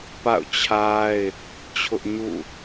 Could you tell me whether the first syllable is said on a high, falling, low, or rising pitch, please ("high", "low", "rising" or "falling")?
falling